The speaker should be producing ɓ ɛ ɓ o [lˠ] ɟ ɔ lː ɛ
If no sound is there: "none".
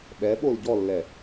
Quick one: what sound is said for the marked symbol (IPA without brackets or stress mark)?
l